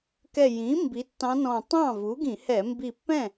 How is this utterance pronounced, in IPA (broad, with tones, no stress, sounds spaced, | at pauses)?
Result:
k ɛ˧˩ j ĩ˩˥ m b i˩˥ tː ɑ̃˧˥ n ɔ̃˧˩ tˤ ɑ̃˥˩ v u˩˥ ɡ ĩ˧˩˧ h ɛ˧˩˧ m b i˧˩ pː ɛ̃˥˩